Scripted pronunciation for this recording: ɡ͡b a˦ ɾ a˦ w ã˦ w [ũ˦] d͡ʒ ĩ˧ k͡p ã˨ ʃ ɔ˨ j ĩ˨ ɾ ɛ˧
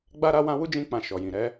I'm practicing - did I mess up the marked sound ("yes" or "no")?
yes